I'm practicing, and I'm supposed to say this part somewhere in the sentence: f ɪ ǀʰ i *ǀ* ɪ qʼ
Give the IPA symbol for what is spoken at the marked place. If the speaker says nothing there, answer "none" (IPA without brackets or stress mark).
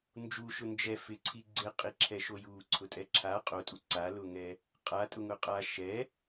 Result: ɡ͡ǀ